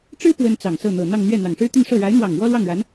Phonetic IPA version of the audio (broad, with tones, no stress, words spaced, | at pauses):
ʈ͡ʂɻ̩˥ pwə˥nt͡sɑ˨˩ŋsɤ˥˩ n̪ɤ˨˩n̪ɑ˥˧ŋn̪ɥɛ˥˩ n̪ɑ˨˩ŋʂɻ̩˥t̪y˥˧nʂɤ˥˩ ɻa˧˥ɪ̯n̪wɑ˨˩ŋ wɔ˥lwɑ˥˩ŋɻa˧˥n